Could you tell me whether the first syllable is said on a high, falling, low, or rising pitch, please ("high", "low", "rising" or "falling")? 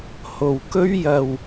low